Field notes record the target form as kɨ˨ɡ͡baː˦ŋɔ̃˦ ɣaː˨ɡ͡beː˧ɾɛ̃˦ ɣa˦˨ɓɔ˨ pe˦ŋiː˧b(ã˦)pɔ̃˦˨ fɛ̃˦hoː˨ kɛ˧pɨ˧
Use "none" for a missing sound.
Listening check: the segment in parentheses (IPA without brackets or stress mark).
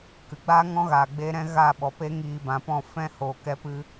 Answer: ã˨